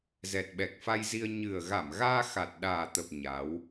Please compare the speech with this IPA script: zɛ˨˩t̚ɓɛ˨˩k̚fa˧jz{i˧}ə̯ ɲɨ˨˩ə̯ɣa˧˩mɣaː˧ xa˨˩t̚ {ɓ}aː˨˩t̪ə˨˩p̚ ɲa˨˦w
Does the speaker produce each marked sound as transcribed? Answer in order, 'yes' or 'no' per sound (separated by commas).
yes, no